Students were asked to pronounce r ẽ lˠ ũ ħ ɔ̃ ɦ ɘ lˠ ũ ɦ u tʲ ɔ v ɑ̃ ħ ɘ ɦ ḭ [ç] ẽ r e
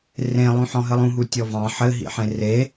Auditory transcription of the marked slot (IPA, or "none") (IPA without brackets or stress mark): ħ